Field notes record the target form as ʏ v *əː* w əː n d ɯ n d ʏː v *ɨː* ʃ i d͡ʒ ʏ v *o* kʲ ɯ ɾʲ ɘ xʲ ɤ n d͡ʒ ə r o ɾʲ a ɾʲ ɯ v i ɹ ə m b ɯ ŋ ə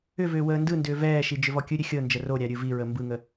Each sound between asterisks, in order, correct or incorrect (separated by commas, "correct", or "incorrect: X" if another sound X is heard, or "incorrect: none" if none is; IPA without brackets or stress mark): incorrect: ʏː, incorrect: ɛː, incorrect: ɔ